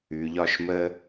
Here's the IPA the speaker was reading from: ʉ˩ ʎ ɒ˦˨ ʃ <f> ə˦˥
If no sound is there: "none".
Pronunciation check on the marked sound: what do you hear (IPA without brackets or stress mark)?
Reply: m